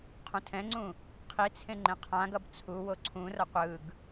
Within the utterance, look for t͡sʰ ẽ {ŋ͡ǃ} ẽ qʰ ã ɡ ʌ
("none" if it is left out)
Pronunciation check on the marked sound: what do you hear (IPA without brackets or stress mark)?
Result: ŋ͡ǃ